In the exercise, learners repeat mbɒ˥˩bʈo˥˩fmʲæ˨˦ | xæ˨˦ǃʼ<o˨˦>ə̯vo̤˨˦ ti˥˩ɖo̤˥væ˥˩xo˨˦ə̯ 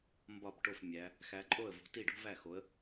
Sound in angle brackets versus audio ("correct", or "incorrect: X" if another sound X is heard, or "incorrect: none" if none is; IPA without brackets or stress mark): incorrect: o˥˩